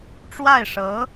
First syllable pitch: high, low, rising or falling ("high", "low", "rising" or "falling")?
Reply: falling